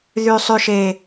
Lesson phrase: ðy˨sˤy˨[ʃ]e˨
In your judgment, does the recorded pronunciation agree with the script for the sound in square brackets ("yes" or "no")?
yes